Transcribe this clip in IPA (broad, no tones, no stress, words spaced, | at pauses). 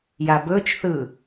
jabɵt͡ʃθɯ